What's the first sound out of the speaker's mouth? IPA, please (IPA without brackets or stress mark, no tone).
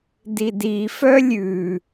d